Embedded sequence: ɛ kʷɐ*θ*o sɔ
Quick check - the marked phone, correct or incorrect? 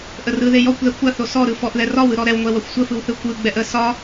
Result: correct